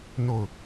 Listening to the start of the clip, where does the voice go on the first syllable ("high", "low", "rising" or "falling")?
falling